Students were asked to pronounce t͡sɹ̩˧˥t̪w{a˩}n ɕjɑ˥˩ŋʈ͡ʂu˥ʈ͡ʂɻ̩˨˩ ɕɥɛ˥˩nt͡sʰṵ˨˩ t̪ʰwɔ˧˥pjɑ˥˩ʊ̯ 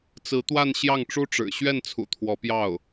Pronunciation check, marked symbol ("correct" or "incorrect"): incorrect